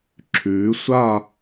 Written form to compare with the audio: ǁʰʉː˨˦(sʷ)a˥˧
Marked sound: correct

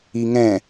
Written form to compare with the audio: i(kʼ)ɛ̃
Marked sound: incorrect: ŋ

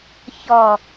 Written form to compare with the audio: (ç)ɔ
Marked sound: correct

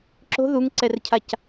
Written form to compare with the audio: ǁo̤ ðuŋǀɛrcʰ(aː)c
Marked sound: incorrect: a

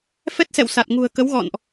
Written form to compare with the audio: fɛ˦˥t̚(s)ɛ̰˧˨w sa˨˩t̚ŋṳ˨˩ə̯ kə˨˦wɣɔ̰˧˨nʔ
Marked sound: correct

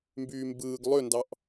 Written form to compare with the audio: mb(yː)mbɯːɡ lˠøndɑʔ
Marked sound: correct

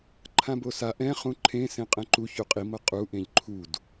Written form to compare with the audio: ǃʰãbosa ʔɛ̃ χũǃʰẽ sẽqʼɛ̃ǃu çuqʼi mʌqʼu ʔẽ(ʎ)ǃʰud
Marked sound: correct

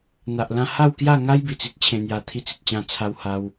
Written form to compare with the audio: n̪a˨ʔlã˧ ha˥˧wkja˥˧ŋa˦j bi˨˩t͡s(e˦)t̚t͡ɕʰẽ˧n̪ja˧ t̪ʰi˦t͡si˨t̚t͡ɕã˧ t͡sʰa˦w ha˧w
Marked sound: incorrect: i˦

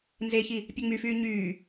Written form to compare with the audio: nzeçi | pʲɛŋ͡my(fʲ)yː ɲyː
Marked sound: incorrect: f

